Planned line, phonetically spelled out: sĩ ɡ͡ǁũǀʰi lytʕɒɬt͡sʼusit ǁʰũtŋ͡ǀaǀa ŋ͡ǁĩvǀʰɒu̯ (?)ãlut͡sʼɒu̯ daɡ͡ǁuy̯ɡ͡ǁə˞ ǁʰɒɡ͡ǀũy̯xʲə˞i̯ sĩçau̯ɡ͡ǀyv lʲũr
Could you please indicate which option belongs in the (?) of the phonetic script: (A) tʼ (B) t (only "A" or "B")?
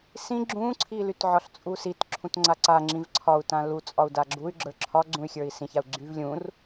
B